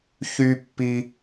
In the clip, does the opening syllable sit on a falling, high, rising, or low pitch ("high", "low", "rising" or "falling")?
high